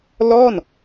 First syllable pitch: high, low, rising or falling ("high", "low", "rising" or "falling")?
falling